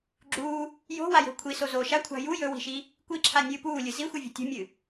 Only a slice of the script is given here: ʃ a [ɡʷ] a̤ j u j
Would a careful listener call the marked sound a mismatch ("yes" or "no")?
yes